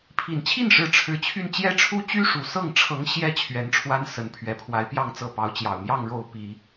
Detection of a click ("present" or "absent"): absent